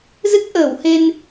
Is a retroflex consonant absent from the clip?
yes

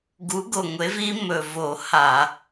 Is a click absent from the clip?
yes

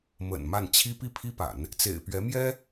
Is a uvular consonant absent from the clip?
yes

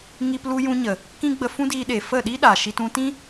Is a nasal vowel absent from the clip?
no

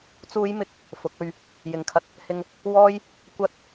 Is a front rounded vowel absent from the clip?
yes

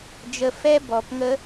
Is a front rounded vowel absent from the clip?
yes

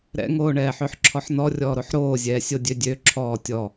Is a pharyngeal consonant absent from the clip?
no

